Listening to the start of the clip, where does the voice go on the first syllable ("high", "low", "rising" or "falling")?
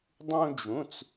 high